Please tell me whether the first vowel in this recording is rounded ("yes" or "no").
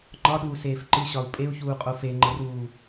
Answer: yes